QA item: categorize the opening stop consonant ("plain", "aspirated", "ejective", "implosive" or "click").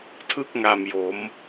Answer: aspirated